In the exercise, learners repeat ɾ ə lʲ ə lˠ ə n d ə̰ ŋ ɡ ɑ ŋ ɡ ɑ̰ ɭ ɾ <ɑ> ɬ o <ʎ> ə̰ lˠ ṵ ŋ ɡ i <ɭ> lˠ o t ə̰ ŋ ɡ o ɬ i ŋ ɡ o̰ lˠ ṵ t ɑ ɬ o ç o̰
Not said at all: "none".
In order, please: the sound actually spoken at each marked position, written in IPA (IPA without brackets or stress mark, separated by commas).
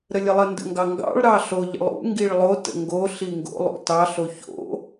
ɑ, ʎ, ɭ